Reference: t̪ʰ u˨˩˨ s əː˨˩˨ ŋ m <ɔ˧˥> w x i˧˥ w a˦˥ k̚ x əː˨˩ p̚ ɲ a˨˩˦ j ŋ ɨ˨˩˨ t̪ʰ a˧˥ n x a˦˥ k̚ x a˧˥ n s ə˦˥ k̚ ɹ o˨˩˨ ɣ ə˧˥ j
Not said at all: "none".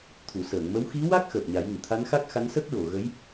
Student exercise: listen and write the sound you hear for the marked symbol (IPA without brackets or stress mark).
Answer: ə˧˥